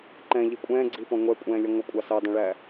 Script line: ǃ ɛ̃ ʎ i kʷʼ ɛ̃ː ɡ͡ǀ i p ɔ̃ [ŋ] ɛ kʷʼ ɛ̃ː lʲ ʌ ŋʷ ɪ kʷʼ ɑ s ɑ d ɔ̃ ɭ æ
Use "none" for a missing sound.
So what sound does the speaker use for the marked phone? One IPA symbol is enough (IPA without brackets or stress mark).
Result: ŋʷ